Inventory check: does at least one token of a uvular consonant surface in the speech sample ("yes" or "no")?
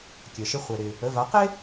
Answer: yes